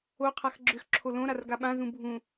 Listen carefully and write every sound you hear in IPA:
o qʰ a x ɡ͡ǁ ʏ x ǁʰ o l õ ɾ a r ɡ a ɓ ã z ũ bʱ ũ

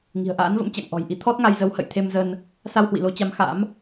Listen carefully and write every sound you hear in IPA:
ŋ i̤˨˩ ə̯ ʔ a̰ː˧˥ n v ə̰˧˥ m t͡ɕ a̰˧˨ ŋ ʔ ɔ̤˨˩ j ʔ i˨˦ t̪ʰ ɔ˦˥ t̚ ŋ a˧ j z ə˨˦ w h ə̰˧˨ j t̪ʰ e˧ m z ə˧ n | s a˧ w h w ḭ˧˨ l o˨˦ t͡ɕ a˨˦ m x a̰˧˥ m

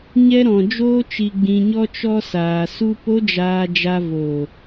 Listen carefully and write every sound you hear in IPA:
ɲ ɛ˧ ɾ ɔ̃˨ d͡ʒ oː˧ t͡ʃ i˨ ɡ͡b ĩ˨ ɲ ɔ˧ t͡ʃ ɔ˧ s aː˨ s u˧ p o˦ d͡ʒ aː˧ d͡ʒ a˧ v oː˨

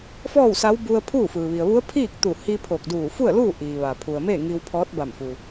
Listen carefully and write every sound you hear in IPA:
f ɔː˥˨ w s a˧˥ w b u˧ ə̯ pʰ uː˥˨ f ɯː˩ ʋ i˩ ə̯ ʋ u˧˥ ə̯ pʰ iː˥˨ k̚ t̪ u˧˩ h i˧ pʰ o˧˩ k̚ d uː˧˩ f u˥˨ ə̯ l uː˥˨ ʔ iː˩ ʋ a˩ pʰ u˩ ə̯ m e˥˨ ŋ i˧ w pʰ ɔː˧˥ t̚ b a˧˩ m f u˩

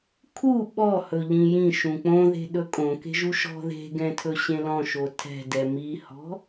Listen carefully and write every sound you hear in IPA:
kʰ u ɓ ɔ h ɵ ʎ ĩ j ĩ ʃ ũ k͡p õ ð e̤ ɗ ɵ kʼ õ k e̤ ʒ u ʃ ɔ̤ ð e̤ ɡ ɛ̃ tʰ ɵ ɕ ẽ l ɔ̃ ʃ o tʰ ɛ̤ d ɛ m i h ɔ̤

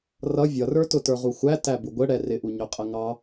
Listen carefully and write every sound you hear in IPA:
r ʌ vʲ ʌ r ə˞ t ʊ t ə˞ ʁ u xʷ æ t æ b u ɡʷ ə ɽ ɛ r ɪ ʔ u ɲ ʊ qʼ ə ŋ ɑ

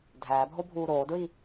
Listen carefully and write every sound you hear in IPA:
dʱ æː bʱ o bʱ uː ɾ oː d ɹ i

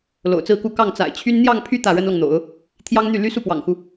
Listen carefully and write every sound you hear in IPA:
l o̰˨˩ ʊ̯ t͡s ɹ̩˥˧ k u˥˧ k ɑ˥˩ ŋ t͡s a̰˨˩ ɪ̯ t͡ɕʰ y˥ n n̪ j ɑ˥˧ ŋ pʰ y˥˧ t̪ ä˥˩ ɻ ə˥ n l ɤ˨ ŋ n̪ o̰˨˩˦ ʊ̯ | t̪ʰ j ɑ˥ ŋ n̪ y˥˩ l y˥ s u˥˩ p w ɑ̰˨˩ ŋ x u˦

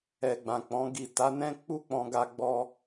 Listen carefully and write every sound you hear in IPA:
ɛ˧ ɡ͡b ã˨ k͡p ɔ̃˨˦ ɡ i˦˨ t a˨˦ n ɛ̃˦ k͡p u˦ k͡p ɔ̃˧ ɡ a˧ ɡ͡b ɔ˧

